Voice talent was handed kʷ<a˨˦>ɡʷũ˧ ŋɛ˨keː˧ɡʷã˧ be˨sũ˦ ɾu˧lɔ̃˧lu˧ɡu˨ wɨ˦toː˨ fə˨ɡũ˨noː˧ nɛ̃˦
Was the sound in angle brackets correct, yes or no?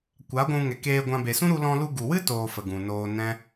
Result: yes